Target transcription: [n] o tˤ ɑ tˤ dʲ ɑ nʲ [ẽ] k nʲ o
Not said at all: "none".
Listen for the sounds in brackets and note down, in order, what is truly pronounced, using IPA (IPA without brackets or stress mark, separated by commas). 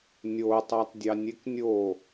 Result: nʲ, e